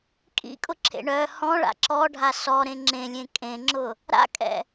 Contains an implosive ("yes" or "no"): no